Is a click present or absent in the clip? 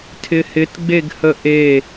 absent